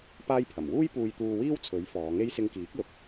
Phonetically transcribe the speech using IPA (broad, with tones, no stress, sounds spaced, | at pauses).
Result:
p aː˥ j pʰ ɐ˨˩ m w uː˥ j p uː˧ j t̪ uː˧ w iː˥ w t͡sʰ ɵ˨˥ ɥ f ɔː˨˧ ŋ e˥ j s ɪ˧ ŋ k iː˨˥ k̚ l ʊ˨ k̚